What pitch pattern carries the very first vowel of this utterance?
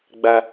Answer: high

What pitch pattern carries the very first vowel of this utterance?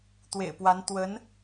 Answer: low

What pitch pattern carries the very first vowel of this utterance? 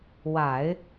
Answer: low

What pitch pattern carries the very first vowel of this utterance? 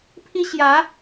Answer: high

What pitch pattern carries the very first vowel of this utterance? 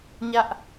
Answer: high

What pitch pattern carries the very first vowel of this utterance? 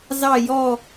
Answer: falling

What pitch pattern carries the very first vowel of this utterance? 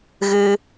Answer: high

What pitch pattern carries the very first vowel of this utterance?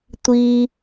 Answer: high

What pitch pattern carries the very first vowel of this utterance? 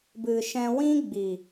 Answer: low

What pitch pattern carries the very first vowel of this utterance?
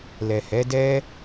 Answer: low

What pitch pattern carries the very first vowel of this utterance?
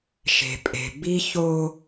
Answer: low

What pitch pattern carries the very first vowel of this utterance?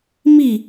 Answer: falling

